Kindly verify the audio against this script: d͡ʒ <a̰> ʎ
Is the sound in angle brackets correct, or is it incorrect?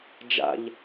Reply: correct